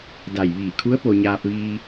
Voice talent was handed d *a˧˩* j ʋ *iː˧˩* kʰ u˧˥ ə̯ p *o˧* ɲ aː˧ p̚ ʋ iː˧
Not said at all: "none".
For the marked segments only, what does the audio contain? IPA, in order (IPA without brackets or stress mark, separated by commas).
a˧˩, iː˧˩, o˧